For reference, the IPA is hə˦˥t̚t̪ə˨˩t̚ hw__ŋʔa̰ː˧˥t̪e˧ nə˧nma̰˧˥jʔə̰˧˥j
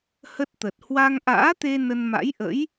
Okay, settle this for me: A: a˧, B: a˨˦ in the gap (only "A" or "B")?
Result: A